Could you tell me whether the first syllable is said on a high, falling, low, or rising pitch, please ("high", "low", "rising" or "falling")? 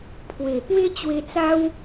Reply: low